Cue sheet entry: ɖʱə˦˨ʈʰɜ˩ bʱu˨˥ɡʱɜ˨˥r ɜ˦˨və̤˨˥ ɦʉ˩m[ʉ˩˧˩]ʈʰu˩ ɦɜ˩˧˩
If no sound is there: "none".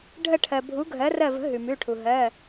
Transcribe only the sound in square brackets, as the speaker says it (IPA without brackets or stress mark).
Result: ʉ˩˧˩